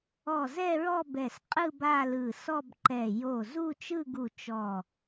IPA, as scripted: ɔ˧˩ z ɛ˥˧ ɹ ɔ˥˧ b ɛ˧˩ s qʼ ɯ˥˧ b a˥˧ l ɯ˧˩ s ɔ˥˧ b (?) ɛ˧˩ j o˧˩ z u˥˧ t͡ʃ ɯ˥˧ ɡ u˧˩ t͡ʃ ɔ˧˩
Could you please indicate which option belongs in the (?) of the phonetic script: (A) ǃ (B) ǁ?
A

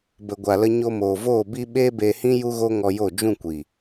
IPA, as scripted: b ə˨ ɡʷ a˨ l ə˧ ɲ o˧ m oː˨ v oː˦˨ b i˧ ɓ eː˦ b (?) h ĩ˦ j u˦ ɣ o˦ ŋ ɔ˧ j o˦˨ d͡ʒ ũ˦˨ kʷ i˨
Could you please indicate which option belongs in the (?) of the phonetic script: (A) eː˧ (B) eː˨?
A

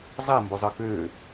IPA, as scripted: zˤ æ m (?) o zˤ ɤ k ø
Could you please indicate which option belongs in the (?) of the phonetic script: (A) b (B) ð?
A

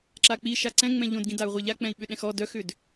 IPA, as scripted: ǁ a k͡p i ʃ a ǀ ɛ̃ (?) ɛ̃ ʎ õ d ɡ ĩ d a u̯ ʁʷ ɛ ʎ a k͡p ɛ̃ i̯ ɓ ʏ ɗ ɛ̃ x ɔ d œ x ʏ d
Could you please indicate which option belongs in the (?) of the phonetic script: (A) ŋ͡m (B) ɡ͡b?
A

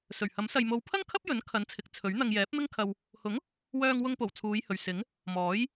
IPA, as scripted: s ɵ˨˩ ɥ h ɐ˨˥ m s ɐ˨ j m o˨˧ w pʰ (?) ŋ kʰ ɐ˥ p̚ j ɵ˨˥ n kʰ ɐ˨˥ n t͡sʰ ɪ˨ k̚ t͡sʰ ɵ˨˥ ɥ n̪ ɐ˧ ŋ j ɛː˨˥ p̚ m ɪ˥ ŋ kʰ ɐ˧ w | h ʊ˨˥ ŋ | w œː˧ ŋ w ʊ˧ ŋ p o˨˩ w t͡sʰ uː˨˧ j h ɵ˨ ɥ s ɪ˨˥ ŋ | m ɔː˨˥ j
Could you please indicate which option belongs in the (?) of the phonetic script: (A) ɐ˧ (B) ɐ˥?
B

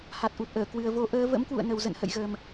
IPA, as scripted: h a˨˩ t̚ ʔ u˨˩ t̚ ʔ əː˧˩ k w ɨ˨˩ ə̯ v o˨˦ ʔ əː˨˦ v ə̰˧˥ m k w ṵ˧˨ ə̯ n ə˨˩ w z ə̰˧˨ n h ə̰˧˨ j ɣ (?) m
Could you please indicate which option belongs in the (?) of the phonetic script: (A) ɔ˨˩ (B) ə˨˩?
B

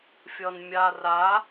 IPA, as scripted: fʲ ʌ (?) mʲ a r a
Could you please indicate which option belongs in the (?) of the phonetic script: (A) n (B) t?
A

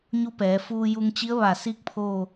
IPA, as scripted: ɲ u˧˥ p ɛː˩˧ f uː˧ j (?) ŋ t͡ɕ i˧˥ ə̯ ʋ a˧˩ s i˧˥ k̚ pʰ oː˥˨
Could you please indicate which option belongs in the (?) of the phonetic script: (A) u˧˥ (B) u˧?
B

